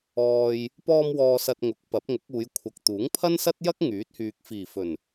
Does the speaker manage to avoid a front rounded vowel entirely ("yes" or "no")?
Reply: no